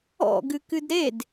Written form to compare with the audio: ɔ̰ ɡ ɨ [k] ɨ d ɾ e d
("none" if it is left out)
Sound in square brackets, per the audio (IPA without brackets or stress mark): k